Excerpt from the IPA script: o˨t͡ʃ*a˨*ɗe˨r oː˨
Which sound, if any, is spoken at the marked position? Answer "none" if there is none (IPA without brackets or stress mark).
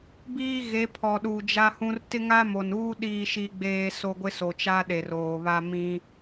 a˦